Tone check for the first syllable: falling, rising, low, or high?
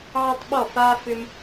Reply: high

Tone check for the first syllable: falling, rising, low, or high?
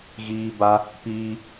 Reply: high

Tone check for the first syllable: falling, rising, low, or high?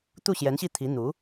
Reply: falling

